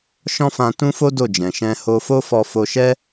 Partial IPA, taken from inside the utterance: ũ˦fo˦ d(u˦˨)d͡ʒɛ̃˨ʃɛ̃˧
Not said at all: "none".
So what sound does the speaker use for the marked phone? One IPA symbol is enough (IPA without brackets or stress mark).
o˦˨